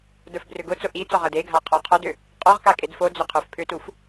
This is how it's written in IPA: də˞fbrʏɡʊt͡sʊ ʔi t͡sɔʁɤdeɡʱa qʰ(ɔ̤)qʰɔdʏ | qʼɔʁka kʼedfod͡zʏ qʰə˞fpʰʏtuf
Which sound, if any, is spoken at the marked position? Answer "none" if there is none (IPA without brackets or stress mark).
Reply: ɔ